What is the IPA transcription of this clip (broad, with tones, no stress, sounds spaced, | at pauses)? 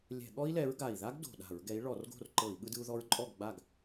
lʲ ɛ̤˧˩˧ ɠ ɔ˥ i̯ l ɛ˨˦ ɹ ɡ a˨˩ i̯ ð a˥ ɡ d o̤˨˩ ɗ a̤˧˩˧ ɹ ɡ ɛ˨˦ i̯ ɭ ɔ˧˩˧ r ɡ o̤˥˨ r ǃ ɤ˧˩˧ i̯ ɠ ɯ˥ d ɯ˥ u̯ ð ɔ˥ ɹ ǃʼ ɔ˥˨ ɡ ɡ͡b a˥˨ ɡ